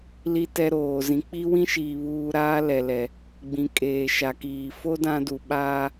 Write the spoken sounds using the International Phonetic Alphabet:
l i˦ t ɛ˦ ɾ oː˨ z ĩ˨ k͡p i˦ w ĩ˦ ʃ iː˨ β uː˦ ɾ aː˦ l ɛ˨ l ɛ˨ | ɡ͡b ĩ˨ kʼ eː˨ ʃ a˨ k iː˨ f o˦ d ã˦ d u˨ ɓ aː˦

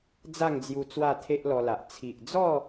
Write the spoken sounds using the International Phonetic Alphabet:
d͡z a˥˧ ŋ d͡z j u˧ t͡s w a˥˧ t̪ʰ e˦ ʔ l ɔ˧ l a˨ ʔ t͡sʰ i˨ ʔ d͡z ɔ˥˧

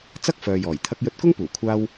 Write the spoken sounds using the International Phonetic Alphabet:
t͡s ɐ˥ k̚ f œː˨ j ɔː˨˩ j t̪ʰ ɐ˧ k̚ j ɵ˧ t̚ k ʊ˥ ŋ p uː˨˩ kʷʰ aː˧ w

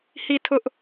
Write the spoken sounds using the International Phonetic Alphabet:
h i˦˨ tʰ ʊ˦ ʔ

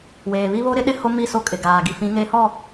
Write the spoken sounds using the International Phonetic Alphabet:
w eː˨ β i˦ β o˦ ɾ ɪ˦ ɗ ɪ˦ h o˦ m i˦˨ s o˦˨ kʼ ɪ˨ ɡ aː˨ ɡ i˨ f ĩ˨˦ ŋ eː˦ h ɔ˦˨

